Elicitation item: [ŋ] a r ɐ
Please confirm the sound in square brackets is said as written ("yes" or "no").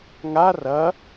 yes